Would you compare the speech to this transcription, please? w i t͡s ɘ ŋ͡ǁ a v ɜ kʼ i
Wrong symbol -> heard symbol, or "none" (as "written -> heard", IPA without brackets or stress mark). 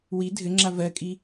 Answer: t͡s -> dʱ